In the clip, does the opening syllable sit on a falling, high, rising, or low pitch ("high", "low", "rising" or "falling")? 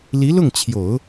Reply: rising